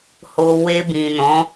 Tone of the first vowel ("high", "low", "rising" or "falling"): low